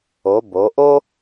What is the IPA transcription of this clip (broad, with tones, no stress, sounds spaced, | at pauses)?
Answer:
o˩˧ b o˩˧ ʔ o˥